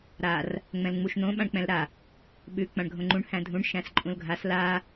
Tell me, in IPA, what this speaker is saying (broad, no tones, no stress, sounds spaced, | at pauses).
ɾ a r | ŋ͡m ɛ̃ l ŋ͡m u ʃ n̪ õ ɓ ã ɳ k͡p ɛ̃ l ɾ a | ɓ ʉ k͡p ã ɳ ɡʱ õ ŋ͡ǃ ũ ɳ h æ̃ dʱ ũ ɳ ʃ æ̃ s ǃʼ ũ l ɡʱ a s l a